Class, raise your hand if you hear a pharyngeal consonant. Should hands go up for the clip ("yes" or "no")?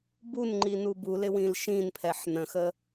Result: yes